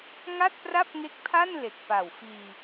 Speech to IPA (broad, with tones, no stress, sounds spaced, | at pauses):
ŋ a˥˩ t̚ p r a˥˩ p̚ ŋ e˦˥ k̚ pʰ a˥˩ n l e˨˩ k̚ p a˨˩ w f iː˧